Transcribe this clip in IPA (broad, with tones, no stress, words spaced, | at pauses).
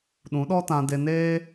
ɗũ˨˦ɗɔ˦tã˧de˧ neː˦